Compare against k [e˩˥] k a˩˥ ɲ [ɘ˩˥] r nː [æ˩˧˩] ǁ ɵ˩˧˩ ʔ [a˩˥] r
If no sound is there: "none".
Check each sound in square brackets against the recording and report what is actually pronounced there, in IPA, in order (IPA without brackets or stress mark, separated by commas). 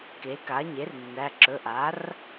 e˩˥, e˩˥, æ˩˧˩, a˩˥